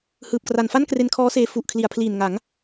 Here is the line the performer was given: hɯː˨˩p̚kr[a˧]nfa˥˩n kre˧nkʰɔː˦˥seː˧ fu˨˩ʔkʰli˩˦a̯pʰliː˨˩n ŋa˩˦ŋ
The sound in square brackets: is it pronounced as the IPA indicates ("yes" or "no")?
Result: no